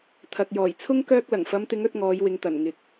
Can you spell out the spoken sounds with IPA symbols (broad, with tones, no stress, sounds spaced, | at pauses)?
t̪ʰ ɐ˨ k̚ j ɔː˨˩ j t͡sʰ ʊ˥ ŋ k œː˧ k̚ l ɐ˨˩ ŋ f ɐ˨˧ m t̪ ɪ˨˧ ŋ ɵ˨˥ t̚ ŋ ɔː˨˧ j w ɪ˨ ŋ t̪ ɐ˨˩ n ŋ ɪ˨˥ k̚